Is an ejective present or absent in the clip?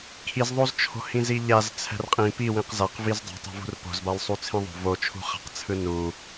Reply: present